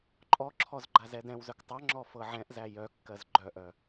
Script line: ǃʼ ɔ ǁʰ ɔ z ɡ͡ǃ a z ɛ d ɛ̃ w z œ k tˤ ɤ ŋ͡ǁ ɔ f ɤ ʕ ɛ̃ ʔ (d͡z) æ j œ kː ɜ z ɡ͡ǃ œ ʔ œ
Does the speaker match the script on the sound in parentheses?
no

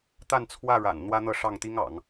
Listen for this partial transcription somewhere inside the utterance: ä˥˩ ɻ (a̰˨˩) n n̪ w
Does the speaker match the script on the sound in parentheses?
yes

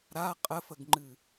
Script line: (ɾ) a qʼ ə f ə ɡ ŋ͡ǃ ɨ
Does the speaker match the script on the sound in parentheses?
yes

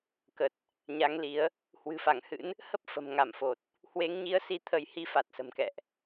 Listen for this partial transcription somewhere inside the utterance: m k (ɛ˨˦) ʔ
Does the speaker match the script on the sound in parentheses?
no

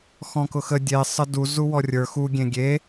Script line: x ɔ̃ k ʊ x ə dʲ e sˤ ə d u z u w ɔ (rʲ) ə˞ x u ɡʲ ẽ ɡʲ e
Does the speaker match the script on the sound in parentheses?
yes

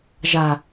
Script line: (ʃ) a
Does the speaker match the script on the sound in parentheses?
no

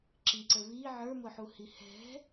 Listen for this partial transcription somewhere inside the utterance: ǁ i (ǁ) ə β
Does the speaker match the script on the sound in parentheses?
no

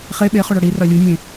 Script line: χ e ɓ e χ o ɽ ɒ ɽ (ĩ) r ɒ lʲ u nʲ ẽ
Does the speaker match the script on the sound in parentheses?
no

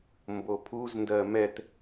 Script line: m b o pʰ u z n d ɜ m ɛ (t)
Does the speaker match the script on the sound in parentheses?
yes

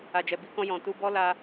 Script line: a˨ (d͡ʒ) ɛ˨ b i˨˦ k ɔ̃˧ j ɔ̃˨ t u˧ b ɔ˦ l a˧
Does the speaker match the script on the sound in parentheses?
yes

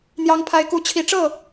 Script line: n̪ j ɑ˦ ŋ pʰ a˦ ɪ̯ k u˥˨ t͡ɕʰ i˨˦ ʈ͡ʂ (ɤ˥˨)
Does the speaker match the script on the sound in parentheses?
yes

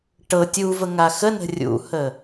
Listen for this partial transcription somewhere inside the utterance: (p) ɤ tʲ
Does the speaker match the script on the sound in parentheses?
no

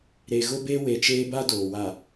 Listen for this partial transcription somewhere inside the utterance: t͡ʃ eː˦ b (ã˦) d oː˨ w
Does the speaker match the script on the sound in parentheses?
no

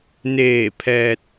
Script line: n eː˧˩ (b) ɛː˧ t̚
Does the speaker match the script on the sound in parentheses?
no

